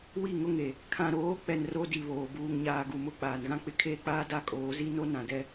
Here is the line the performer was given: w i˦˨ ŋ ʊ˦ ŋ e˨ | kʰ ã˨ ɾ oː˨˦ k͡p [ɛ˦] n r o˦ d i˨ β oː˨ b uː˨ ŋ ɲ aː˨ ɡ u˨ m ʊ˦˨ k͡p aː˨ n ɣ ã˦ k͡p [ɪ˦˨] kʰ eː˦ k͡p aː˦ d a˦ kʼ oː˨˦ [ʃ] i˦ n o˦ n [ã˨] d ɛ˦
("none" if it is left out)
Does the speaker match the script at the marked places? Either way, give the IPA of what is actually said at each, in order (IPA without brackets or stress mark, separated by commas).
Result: ɛ˨, ɪ˦˨, z, ã˨